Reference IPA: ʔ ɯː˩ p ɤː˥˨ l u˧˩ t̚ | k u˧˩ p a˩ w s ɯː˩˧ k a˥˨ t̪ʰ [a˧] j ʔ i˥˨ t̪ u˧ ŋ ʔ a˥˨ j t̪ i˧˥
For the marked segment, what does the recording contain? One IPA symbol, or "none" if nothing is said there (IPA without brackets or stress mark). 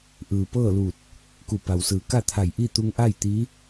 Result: a˧˩